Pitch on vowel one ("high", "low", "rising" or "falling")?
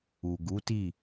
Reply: low